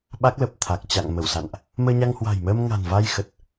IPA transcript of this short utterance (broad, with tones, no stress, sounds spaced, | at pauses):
ɓ a˦˥ k̚ l ə˨˩ p̚ t̪ʰ a˨˩ k̚ t͡ɕ a̰˧˨ ŋ m ə˧˩ w s a̰˧˨ n ʔ | m əː˧ ɲ a˧ ŋ h w a̤˨˩ j m əː˧ m ŋ a̤˨˩ n v a˧ j x ə˨˩ t̚